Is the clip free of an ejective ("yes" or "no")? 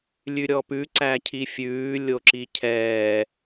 yes